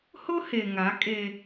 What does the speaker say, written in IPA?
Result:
h ʊ˦ h e˨ ŋ a˨˦ kʼ e˦

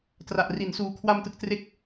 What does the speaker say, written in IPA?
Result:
t r a˨˩ ʔ r i˨˩ n s uː˨˩ kʰ w a˧ m t ɯ˨˩ k̚ t r e˦˥ k̚

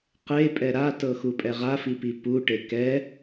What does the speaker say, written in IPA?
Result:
q e pʼ ɛ ɾ a t ɤ x u pʼ ɛ ʁ a f i p i p u ʈ e k ɛ

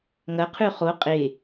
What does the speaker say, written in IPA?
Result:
ŋ ɐ qʰ ʉ χ o qʼ e

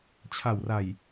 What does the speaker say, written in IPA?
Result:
t͡ɕʰ a˨˩ w r a˨˩ j

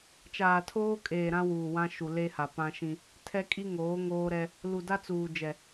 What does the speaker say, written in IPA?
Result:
t͡ʃ aː˨ tʰ oː˦ kʼ eː˨ ɾ ã˦ w uː˨ w ã˦ ʃ u˨ l e˦ h a˨ p ã˦ ʃ ĩ˦ | tʰ ɛ˦ kʼ i˦ ŋ oː˨˦ ŋ oː˦ ɾ ɛ˦ | l u˨ d a˦ t͡s uː˨ d͡ʒ ɛ˨

